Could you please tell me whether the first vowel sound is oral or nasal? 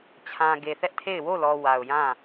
nasal